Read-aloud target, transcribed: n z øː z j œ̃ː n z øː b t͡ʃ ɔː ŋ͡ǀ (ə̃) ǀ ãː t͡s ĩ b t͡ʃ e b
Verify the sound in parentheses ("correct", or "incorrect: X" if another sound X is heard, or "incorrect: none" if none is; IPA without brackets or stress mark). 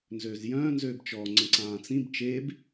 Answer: correct